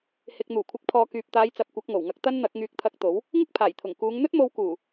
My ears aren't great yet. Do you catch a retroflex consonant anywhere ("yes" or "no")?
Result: no